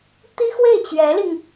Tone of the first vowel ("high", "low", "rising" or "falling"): high